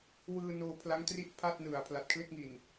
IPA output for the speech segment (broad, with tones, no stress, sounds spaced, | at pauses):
w ɯː˧ n oː˧ pʰ l a˦˥ ŋ t r i˥˩ ʔ pʰ a˥˩ t̚ n ɯ˨˩ a̯ pʰ l a˨˩ t̚ kʰ l e˥˩ k̚ ŋ i˨˩ n